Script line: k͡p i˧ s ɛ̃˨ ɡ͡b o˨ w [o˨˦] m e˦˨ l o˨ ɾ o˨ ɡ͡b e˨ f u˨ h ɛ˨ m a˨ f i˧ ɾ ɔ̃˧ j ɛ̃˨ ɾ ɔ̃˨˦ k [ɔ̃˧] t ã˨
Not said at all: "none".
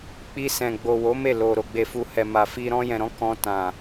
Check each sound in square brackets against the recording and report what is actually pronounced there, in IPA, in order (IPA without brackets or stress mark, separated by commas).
o˨˦, ɔ̃˧